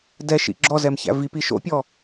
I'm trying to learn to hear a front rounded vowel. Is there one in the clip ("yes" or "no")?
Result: no